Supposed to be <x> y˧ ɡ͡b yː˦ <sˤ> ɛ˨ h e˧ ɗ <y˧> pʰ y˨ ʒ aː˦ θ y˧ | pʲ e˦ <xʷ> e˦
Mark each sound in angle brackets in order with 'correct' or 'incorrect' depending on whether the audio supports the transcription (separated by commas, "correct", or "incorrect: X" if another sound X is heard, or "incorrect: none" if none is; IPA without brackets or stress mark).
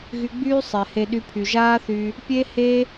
incorrect: ɣ, correct, correct, incorrect: h